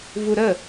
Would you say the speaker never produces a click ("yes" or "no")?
yes